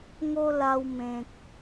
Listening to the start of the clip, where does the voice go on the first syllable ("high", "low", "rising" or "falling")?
high